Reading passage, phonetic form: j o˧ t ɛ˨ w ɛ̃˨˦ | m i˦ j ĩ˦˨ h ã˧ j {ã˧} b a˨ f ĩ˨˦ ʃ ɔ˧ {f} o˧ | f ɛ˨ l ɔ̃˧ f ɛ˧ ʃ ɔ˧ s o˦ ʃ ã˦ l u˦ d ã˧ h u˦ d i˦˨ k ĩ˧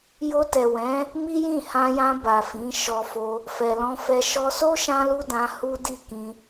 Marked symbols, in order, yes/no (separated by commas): yes, yes